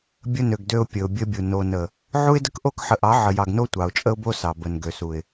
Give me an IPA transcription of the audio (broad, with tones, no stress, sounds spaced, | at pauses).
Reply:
bʲ ə˦ n ø˨ ɡ d ø˦ ʊ̯ pʲ ə˨ ʊ̯ bʲ ə˦ bʲ u˨ n o˨ n ə˨ | ʕ u˦ ɪ̯ d ə˦ k ʔ o˦˨ k ħ ə˨ ʔ ɑ˨˦ ʕ ə˨ j ɑ˨ ɡ n o˦ tʷ ɑ˨ ʊ̯ t͡ʃʼ ə˦ ʊ̯ b o˦ s ɑ˨ b ə˨ n ɡ ø˨ s u˨ ɪ̯